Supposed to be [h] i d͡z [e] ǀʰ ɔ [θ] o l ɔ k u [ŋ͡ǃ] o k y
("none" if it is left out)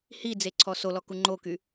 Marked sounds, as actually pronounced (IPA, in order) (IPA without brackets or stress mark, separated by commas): h, e, s, ŋ͡ǃ